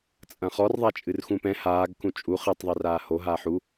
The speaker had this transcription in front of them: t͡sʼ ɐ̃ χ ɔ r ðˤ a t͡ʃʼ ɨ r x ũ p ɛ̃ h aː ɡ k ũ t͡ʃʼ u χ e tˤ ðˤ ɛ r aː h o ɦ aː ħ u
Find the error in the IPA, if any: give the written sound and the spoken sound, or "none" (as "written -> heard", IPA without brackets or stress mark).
none